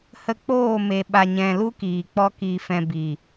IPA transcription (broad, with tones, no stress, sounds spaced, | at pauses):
h ə˧ k͡p oː˦˨ m e˨ ɓ a˨ ɲ ɛ̃˨ l u˦ k iː˨ k͡p ɔ˦ k i˧ f ɛ̃˧ b i˨